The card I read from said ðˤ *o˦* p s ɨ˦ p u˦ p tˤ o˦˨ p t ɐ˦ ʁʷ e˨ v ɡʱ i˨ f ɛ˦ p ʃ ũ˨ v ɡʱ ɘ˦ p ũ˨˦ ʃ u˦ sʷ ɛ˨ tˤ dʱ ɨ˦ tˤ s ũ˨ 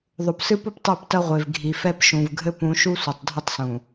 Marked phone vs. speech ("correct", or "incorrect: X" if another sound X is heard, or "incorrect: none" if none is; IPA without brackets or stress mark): incorrect: o˨